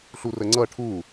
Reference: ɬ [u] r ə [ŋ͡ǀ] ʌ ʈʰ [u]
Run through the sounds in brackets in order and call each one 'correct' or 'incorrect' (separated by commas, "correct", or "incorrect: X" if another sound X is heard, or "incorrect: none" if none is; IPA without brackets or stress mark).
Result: correct, correct, correct